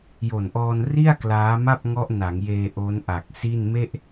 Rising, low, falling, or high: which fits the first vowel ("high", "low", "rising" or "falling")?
low